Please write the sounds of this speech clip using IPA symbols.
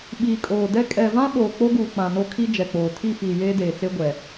ɓiː˨kʼoː˨dɛ˦ kʼɛ˨vã˦ɓoː˨ k͡po˦ɡuː˨ k͡pã˨no˦kʰi˦ d͡ʒɛ˨k͡poː˨ tʰi˦˨fiː˨ jeː˦deː˨t͡se˦ɡʷɛ˨

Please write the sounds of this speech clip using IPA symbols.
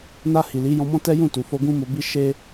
na˧ hi˨li˨˦ jɔ̃˧mɔ̃˦tɛ˦ jũ˦˨tu˨fo˧ ɡũ˦mo˧bi˦ ʃe˦

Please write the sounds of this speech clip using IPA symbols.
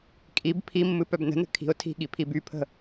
kʼib pʰimːɨ pœbnə̤nə̤ kʰi̤ʊ̯ tʰi̤ɠi pʰibypʰə̤

